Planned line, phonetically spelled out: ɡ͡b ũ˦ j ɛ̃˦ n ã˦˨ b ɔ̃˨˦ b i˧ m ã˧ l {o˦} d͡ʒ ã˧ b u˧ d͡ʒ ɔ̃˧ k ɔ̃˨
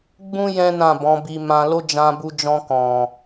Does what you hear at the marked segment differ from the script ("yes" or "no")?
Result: no